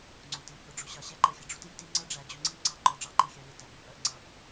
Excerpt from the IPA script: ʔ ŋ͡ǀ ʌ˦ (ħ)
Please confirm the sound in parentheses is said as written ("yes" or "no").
no